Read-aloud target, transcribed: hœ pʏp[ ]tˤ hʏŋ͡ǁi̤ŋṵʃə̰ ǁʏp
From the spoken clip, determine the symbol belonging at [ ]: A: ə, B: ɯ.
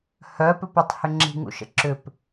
A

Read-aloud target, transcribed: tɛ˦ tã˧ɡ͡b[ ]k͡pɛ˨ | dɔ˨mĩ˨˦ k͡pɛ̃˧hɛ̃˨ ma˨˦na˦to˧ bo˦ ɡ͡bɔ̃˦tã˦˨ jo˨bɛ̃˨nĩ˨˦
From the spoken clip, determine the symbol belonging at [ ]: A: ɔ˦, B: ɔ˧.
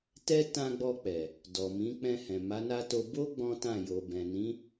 B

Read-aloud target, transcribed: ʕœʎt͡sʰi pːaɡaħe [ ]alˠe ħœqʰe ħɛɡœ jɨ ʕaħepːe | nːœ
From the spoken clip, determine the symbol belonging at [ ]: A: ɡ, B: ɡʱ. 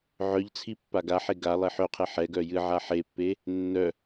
A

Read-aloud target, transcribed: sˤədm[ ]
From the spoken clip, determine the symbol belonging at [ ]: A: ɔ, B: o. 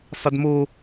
B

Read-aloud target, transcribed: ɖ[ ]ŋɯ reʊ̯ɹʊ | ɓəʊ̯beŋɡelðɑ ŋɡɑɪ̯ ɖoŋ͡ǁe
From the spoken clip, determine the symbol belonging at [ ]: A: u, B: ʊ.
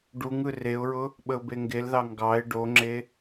A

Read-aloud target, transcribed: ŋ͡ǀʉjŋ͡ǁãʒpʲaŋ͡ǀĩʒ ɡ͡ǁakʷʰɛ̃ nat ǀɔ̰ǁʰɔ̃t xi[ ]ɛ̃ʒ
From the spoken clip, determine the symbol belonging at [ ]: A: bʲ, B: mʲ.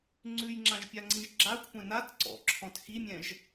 B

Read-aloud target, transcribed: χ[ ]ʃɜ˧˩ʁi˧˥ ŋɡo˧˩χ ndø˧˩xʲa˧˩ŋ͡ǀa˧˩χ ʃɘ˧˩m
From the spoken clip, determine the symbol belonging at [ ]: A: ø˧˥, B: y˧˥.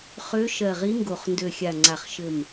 A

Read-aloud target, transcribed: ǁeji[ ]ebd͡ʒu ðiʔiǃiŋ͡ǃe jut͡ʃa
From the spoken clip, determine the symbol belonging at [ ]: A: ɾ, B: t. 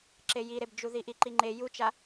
A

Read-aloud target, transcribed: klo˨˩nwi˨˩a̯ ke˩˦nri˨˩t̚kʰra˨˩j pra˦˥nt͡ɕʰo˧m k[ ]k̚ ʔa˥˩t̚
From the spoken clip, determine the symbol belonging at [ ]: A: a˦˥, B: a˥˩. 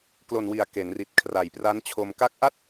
A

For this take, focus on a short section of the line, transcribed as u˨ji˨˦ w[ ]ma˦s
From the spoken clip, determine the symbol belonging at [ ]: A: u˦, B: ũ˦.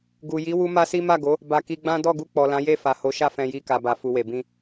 A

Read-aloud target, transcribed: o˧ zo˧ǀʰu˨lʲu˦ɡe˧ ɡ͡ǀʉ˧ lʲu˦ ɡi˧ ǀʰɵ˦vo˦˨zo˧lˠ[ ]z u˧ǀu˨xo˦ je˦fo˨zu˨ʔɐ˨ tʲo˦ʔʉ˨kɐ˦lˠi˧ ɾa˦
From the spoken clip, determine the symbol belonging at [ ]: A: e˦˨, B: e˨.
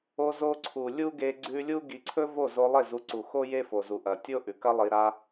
A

